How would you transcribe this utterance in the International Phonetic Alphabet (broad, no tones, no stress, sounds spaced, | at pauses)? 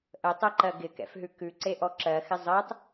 ʔ ə tˤ ɜ ǃ ɜ ɡ ɪ k ɛ̰ f ɦ ʉ k ʉ ǀ e ʔ ɔ ǁ ɜ x ɪ zˤ ɜ tˤ